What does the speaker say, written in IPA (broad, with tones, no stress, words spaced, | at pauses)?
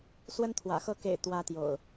swə˦nt̪ʰwä̰˨˩xɤ˥˨ kḛ˨˩ɪ̯ t̪wä˦ t̪jo̰˨˩ʊ̯